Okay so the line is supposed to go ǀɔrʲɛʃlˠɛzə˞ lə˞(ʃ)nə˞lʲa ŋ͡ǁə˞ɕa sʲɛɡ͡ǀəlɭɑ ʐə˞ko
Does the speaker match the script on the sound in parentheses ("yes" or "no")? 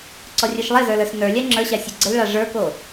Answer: no